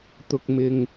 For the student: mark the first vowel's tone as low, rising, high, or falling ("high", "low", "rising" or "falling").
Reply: low